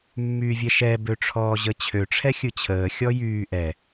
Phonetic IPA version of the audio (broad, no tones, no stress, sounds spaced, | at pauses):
mː yː vʲ ɛ ʃ ɛ b ø ʈ͡ʂʰ ɔː ʑ ə t͡ɕʰ ø ʈ͡ʂʰ ɛ xʲ ɯ t͡ɕʰ əː xʲ ɔ j yː ʔ ɛ